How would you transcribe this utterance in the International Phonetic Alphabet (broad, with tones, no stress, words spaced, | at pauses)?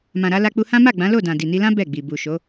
mã˨ɾa˧ la˧k͡pu˧hã˦ ma˦˨ɡ͡bã˨˦lo˦˨dã˨ di˨ni˧lã˦ bɛ˦˨ɡ͡bi˨ bu˨ʃo˨˦